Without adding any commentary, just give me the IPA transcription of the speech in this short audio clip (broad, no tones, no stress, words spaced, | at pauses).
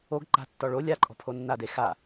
oɡ ǃa̤tːɔ ɭo lʲaǃʼɔ̤pʰo nːade xa